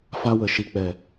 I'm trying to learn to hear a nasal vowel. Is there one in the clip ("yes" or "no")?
no